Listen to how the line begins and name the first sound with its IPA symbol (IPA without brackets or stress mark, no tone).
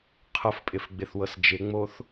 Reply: qʰ